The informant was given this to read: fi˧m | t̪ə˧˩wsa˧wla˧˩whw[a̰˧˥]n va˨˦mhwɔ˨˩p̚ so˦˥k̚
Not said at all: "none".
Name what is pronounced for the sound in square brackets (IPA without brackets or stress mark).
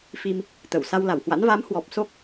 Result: a̰˧˥